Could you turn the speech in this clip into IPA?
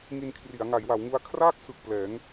ŋ i˧ n kʰ r i˩˦ a̯ ŋ a˩˦ j w a˩˦ w ŋ u˧ a̯ kʰ r aː˥˩ k̚ s ɯ˨˩ k̚ p l ɛː˩˦ ŋ

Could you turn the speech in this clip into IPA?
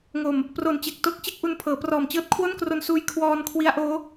ŋ o˨˩ m | p r o˨˩ n t͡ɕ e˨˩ k̚ t o˦˥ k̚ t͡ɕ e˥˩ k̚ ʔ u˧ n pʰ ɤː˩˦ p r ɔː˨˩ m t͡ɕ ɤː˥˩ t̚ kʰ w o˥˩ n k r o˧ n s uː˧ j kʰ w ɔː˧ n kʰ w i˦˥ a̯ ʔ oː˦˥

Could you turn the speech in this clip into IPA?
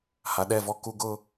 h a˨ ɗ ɛ˦˨ v ɔ˦ k u˦ ɡ ʊ˦

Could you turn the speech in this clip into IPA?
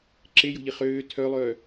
ǁ e j o̤ ʎ i χ øː tʰ œ lˠ œː

